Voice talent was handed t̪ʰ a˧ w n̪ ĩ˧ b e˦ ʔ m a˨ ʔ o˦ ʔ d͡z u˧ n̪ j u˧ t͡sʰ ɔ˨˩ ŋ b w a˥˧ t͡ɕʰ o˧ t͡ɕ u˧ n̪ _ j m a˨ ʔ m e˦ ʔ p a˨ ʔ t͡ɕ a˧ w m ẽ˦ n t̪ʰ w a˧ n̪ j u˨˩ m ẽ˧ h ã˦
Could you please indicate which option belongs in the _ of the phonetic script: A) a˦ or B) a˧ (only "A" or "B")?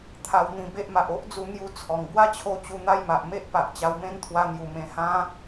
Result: A